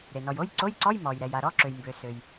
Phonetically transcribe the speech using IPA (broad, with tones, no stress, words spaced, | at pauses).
ɾe˩nɔ˩j o˧˥˧jǀo˧˥˧jǀɔ˧˥˧j mɔ˩jɾɛ˩j a˩ɾɔ˧˥˧ǁø˩jmbø˩ sø˩j